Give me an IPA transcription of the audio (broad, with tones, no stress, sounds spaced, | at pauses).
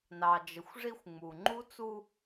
n ɑ˨ d͡ʒ ə˨ xʷ ʐ i˦ xʷ ŋ͡m u˨ ŋ͡ǃ u˦ t͡s u˦